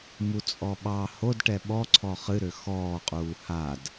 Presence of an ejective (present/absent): present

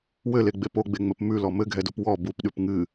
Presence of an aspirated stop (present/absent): absent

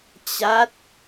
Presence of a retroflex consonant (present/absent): absent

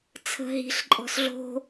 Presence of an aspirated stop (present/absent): present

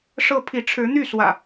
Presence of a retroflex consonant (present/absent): present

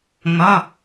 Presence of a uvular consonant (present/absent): absent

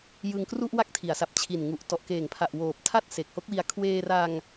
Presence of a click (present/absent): absent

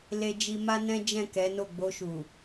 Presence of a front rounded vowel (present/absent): absent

